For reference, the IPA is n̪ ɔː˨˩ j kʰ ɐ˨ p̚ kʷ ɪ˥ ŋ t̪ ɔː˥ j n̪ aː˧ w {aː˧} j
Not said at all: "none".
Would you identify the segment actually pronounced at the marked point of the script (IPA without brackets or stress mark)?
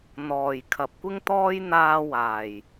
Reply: aː˨˩